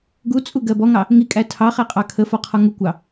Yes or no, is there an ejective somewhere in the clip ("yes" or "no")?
yes